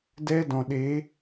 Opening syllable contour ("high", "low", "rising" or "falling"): high